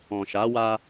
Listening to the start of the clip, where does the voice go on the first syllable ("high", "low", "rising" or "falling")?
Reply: low